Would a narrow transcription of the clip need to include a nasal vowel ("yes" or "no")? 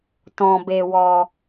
yes